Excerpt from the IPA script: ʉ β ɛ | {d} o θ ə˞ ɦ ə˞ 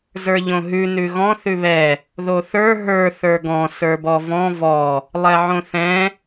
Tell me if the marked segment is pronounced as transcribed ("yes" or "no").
no